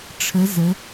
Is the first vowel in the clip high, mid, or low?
mid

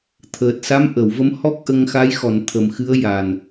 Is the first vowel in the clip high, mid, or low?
mid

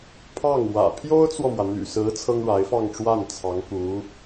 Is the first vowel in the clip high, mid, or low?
low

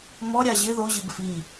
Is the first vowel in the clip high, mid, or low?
mid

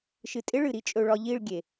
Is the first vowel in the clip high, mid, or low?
high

